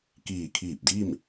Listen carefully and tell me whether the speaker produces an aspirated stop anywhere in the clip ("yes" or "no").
yes